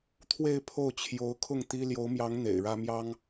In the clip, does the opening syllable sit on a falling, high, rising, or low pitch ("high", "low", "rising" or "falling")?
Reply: falling